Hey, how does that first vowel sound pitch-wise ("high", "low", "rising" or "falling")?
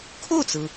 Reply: falling